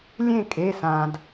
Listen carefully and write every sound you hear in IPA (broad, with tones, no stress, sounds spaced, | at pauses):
lʲ ẽ˥˨ kʼ e˩˧˩ s ã˩ d